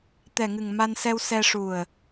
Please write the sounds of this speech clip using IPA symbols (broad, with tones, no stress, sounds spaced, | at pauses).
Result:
t̪ ɛ˨˩ ŋ ɨ˨˩ ŋ m a˧ n s ɛ˧ w s ɛ˧ ʂ u˨˩ ə̯